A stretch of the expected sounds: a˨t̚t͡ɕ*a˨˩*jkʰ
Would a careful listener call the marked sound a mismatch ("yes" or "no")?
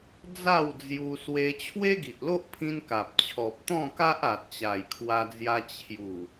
no